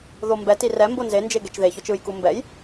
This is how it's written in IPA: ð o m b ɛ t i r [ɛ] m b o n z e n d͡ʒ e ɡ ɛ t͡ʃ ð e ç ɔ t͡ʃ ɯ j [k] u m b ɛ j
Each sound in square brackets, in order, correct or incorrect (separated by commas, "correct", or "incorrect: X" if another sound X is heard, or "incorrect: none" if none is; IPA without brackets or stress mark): correct, correct